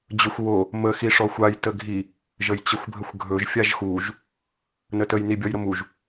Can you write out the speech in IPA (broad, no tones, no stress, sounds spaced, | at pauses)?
d͡ʑ ɵ xʷ w o | m ə x i ʂ ɔ xʷ a j t ə ɡʱ i | ʒ ə j t͡ɕ ə xʷ bʱ ə xʷ ɡʱ ɵ ʒ fʲ a ʒ x u ʒ | n ə t ə j n i bʲ ɔ j ɾ ə m u ʒ